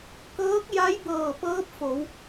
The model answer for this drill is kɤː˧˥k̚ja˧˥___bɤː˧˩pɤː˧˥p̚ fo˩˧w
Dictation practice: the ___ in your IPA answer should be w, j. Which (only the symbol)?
j